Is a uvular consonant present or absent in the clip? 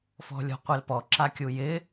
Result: present